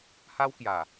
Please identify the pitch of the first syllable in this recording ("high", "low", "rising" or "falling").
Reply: high